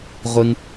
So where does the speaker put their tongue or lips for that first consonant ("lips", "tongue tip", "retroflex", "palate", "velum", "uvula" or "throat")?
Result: uvula